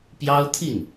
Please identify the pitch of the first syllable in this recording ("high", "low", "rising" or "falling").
high